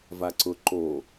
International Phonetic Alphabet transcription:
v a ǀ ʊ ǃ o

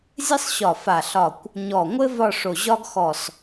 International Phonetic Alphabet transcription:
zʲ ɘ˥ sˤ ɕ ɒ˧˩ f a˧˩ ɬ ɒ˧˩ kʷ | ɲ ɔ˧˩ ŋʷ ɘ˥ v ɒ˥˧ ʂ o˧˩ ʑ ɒ˥ ɡ x ɔ˧˩ s

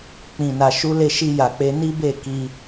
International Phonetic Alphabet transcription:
k͡p ĩ˨ n a˨ ʃ u˨˦ l e˧ ʃ i˧ j a˨ k͡p e˨˦ n i˦ b e˦˨ k i˧

